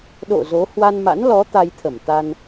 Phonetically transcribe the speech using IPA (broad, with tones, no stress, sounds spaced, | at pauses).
ɗ o̰˧˨ z o˨˦ h w a˧ n m a̰˧˥ n l ɔ˨˦ t̪ a˧ j t̪ʰ ə˧˩ m t̪ a˧ n